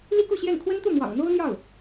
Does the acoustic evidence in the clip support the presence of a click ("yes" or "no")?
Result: no